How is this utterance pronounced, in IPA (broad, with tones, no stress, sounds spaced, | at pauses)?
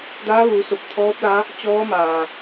d aː˧˥ ʋ uː˩˧ s o˧˩ p̚ t̪ʰ ɔː˧˥ p̚ l a˧˥ | t͡ɕ ɔː˧˥ m aː˩